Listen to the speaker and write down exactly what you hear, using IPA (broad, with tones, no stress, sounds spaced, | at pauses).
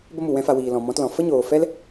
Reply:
b ə˦ m u˨ w ɛ̃˦ f a˧ w iː˨ l ɔ̃˨ m ɔ̃˨˦ t l ɔ̃˨ f ə˦ ɲ oː˨ f ɛ˦ l